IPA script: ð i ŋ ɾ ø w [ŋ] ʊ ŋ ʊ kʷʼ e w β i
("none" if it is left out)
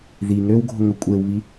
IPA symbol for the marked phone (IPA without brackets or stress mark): ɡʱ